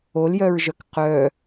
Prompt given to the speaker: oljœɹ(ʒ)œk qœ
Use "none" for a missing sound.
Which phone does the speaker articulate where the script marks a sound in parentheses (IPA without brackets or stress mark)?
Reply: ʒ